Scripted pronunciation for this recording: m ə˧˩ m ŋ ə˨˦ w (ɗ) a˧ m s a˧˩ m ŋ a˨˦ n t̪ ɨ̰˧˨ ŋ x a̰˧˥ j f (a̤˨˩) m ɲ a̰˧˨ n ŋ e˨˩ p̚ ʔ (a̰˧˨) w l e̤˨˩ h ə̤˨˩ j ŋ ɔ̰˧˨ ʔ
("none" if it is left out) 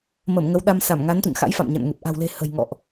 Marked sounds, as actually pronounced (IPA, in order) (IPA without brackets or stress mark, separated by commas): ɗ, a̰˧˨, a̤˨˩